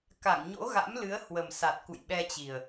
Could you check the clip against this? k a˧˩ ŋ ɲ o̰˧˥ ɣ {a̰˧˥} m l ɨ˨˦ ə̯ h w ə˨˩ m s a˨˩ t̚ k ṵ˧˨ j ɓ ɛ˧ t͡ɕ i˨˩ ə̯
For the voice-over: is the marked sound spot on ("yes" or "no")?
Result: yes